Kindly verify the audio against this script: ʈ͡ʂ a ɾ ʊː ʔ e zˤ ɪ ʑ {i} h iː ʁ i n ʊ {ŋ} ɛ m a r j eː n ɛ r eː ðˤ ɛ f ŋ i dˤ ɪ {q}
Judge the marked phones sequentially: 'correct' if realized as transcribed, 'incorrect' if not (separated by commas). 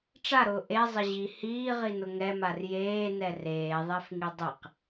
correct, correct, correct